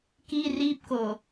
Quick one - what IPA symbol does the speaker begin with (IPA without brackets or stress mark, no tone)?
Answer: k